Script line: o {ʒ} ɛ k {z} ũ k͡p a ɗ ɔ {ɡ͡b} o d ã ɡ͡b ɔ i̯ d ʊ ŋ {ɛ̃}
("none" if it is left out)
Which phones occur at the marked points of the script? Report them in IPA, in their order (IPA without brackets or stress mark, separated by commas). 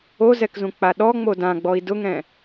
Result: z, z, ŋ͡m, ɛ̃